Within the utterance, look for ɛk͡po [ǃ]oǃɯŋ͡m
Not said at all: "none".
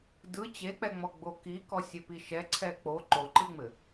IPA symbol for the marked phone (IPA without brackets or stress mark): ǃ